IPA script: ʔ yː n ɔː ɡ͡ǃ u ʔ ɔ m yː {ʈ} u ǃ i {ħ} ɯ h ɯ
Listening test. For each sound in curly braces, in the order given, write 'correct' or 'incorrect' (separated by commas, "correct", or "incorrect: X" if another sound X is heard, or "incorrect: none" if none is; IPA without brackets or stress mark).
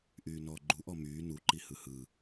incorrect: n, incorrect: h